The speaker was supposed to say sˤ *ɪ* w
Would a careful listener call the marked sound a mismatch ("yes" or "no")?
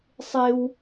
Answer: no